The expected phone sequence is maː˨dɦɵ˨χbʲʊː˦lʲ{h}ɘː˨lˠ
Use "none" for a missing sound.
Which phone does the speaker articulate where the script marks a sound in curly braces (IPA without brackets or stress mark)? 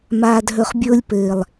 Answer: p